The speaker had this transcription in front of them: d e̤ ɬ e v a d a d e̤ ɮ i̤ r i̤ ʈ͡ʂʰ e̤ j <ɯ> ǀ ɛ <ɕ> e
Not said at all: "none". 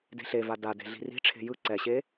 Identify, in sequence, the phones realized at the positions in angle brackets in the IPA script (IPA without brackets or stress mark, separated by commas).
ɯ, ɕ